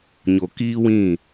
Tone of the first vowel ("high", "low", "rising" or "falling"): low